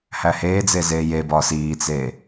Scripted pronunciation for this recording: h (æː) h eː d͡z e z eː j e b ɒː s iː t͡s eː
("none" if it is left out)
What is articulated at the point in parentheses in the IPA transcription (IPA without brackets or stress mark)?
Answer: æ